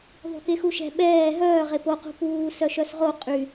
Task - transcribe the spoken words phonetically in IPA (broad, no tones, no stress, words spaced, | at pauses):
ðˤṳkexuʃɛ̤ ɓɛː ɦœː ʁepo qṳpuː sœʃœsʁo qʼy